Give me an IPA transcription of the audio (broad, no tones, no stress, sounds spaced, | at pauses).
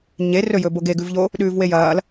ɲ e r ɵ j ɵ b o ɡ e ɡ ʉ v ʎ o | ɗ ʉː v w e j ɐː l